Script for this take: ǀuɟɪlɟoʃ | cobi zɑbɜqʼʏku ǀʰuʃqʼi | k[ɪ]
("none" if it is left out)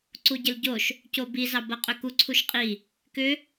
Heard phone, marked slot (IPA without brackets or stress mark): ʏ